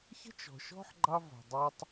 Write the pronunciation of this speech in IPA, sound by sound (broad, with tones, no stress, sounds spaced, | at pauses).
ç ə̤˦ t͡ʃ ɔ̤˨ ʃ ɔ̤˦ ħ ɡ͡ǃ ɑ˦ v ɔ̤˨ dˤ e˦ tˤ